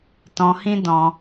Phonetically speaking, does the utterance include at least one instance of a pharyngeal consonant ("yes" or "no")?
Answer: no